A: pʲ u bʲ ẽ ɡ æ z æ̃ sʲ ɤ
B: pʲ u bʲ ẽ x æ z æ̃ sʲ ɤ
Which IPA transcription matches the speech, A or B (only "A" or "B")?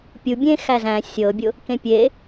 B